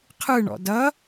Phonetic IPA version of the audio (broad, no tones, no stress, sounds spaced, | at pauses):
qʰ ɯ ɳ ɔ̰ d ʌ